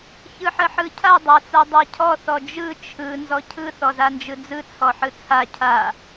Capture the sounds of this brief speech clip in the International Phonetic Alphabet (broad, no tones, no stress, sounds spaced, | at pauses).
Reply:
ç ɯ ħ ə ħ ɯ cʰ a dˤ a t͡s a dˤ a cʰ ɔ θ ɔ d͡ʒ ɯ t͡ʃʰ ɯ n z ɔ cʰ ɯ θ ɔ z a n d͡ʒ ɯ d͡z ɯ t͡sʰ ɔ ħ ɯ t͡sʰ a cʰ a